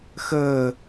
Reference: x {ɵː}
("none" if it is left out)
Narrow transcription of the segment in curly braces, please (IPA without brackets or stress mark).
əː